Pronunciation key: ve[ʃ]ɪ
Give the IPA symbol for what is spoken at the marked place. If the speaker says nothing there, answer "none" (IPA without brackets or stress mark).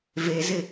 z